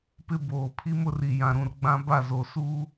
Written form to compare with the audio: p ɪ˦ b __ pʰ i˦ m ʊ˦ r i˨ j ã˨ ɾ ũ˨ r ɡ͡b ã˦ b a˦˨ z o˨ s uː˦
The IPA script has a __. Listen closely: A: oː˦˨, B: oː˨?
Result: B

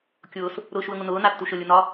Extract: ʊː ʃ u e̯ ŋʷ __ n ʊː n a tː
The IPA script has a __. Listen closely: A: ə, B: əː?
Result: A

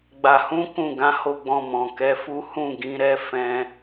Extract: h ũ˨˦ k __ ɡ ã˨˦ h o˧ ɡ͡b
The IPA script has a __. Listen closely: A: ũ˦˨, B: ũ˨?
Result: A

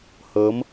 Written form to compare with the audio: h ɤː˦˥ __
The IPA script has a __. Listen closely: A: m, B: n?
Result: A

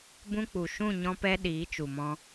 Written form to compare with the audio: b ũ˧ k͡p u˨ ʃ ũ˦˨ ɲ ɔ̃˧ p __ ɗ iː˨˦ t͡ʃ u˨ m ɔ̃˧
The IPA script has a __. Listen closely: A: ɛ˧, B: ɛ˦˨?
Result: A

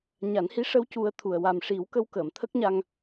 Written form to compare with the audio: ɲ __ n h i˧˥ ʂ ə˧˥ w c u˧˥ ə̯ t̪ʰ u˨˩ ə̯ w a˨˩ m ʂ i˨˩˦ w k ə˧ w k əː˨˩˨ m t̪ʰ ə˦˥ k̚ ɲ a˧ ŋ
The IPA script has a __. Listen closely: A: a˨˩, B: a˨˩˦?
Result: B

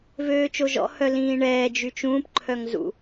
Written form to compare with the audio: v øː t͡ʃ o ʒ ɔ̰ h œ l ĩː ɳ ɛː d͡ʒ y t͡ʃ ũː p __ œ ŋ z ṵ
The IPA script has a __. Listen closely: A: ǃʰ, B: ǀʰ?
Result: A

